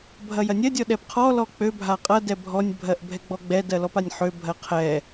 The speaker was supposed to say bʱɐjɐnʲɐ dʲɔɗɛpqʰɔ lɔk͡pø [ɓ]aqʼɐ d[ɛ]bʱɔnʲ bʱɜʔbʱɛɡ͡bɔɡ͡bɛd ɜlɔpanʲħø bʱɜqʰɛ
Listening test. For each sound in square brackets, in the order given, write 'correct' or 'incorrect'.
incorrect, correct

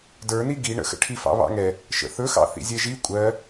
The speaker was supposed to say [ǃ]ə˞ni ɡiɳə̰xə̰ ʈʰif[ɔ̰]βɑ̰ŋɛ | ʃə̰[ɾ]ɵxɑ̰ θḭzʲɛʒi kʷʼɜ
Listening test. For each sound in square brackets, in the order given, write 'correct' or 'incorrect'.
incorrect, incorrect, incorrect

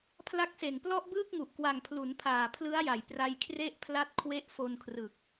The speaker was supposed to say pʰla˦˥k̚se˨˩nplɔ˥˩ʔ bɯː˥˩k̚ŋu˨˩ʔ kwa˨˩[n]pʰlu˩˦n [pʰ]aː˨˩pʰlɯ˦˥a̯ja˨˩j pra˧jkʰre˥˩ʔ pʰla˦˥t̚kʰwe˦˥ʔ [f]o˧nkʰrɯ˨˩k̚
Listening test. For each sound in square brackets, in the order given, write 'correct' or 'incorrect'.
incorrect, correct, correct

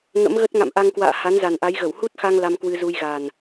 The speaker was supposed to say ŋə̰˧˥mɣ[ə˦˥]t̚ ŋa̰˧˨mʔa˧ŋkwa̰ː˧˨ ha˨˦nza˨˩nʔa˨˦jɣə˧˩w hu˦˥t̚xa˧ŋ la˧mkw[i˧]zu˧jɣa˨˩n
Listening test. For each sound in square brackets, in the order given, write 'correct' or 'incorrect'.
correct, incorrect

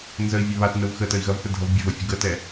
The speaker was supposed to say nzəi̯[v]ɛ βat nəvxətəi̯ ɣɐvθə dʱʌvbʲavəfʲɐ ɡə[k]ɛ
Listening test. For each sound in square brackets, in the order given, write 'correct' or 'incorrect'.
incorrect, incorrect

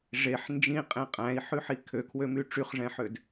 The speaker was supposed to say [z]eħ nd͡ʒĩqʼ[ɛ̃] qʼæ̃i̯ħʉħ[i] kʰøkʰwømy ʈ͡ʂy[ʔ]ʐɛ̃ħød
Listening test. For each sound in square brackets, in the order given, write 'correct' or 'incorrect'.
incorrect, incorrect, correct, incorrect

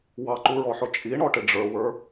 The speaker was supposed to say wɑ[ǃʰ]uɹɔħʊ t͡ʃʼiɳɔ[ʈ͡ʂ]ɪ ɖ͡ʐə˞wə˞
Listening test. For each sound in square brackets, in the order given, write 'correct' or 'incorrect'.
incorrect, incorrect

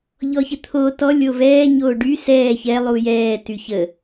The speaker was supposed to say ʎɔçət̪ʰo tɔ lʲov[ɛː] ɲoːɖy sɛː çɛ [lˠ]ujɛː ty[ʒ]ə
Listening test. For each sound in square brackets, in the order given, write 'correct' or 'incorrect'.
correct, correct, incorrect

